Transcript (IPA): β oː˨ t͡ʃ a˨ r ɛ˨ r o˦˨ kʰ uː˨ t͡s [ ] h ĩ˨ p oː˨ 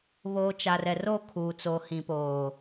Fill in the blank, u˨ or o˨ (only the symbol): o˨